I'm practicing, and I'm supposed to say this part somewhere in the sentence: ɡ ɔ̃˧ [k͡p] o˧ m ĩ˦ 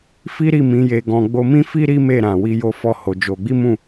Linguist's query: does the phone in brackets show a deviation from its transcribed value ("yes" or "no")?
yes